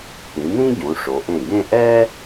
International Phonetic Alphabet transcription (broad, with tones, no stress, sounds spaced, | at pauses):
t̪ ĩ˩˧ n̪ ĩ˥ ɟ ũ˩˧ ʂ o˩˧ ʔ ẽ˧˩ ɡ ẽ˥˧ ʔ ɛ˥